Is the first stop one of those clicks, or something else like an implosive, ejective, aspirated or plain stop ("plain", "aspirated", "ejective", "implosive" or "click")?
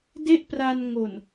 plain